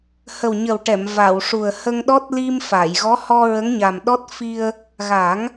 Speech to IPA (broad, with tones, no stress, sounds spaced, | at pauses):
h ə˨˩ w ɲ ə˨˩ w ʈ ɛ˨˩˨ m v a˨˩˨ w ʂ u˨˩ ə̯ h ə˧ ŋ ɗ ɔ˦˥ t̚ l i˧ m f a˨˩˨ j ɣ ɔ˧˥ h ɔ˧ ɹ ə˧˥ ŋ ɲ a˨˩ m ɗ ɔ˦˥ t̚ f i˧ ə̯ | ɣ a˨˩˦ ŋ